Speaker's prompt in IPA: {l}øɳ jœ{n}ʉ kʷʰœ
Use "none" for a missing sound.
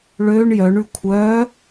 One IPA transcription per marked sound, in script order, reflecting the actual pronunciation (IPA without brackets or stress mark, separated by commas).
ɭ, ɳ